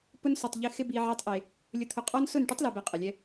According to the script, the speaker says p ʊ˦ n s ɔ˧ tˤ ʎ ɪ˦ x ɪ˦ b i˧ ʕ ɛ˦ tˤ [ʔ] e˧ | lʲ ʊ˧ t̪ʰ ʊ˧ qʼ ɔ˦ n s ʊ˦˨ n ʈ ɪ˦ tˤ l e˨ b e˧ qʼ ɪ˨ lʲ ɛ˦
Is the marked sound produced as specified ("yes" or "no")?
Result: yes